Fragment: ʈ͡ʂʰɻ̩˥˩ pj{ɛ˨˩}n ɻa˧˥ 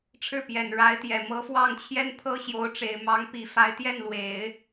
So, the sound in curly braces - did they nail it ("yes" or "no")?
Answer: yes